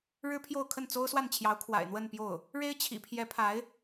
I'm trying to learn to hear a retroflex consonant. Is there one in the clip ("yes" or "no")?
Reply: yes